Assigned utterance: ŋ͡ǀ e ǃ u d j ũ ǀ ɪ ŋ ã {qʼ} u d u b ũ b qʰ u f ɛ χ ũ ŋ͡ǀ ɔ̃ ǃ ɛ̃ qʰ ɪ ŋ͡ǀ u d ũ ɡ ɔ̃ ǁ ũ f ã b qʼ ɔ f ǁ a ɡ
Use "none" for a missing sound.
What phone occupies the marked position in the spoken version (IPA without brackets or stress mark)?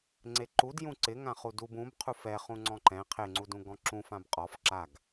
χ